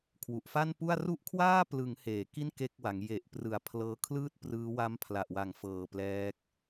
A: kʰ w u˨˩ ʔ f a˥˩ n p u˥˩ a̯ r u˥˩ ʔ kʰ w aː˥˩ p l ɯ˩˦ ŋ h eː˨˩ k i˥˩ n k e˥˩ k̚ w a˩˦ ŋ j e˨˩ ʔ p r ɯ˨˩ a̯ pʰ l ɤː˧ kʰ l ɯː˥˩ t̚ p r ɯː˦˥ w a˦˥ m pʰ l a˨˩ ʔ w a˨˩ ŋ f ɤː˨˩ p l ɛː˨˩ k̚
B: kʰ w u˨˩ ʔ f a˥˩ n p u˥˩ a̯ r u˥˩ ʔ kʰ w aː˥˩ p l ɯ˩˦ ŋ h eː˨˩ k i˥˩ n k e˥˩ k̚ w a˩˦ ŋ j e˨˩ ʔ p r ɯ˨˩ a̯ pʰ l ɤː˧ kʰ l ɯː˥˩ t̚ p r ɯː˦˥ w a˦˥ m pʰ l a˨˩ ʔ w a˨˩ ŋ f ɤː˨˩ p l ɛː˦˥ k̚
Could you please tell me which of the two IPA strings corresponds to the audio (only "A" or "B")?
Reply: B